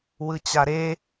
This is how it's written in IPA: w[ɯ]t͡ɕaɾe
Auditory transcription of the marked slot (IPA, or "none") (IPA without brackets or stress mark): ɯ